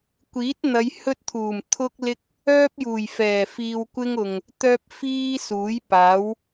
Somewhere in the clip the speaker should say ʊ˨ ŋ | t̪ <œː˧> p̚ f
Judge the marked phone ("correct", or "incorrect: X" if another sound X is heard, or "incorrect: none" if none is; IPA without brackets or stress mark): correct